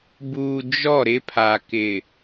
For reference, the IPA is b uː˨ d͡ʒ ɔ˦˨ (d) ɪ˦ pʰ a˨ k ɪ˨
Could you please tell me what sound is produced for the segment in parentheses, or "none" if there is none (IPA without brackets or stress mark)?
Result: ɾ